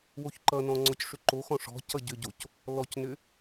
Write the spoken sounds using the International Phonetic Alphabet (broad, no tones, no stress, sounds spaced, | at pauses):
w o ç ǃ ʌ n ɔ̃ ŋ͡ǀ ɔ c ʂ ʏ ǃ o x ɔ̃ ʂ ɔ̤ c ʌ ɟ ʏ ɟ o c | l ɔ c n ʏ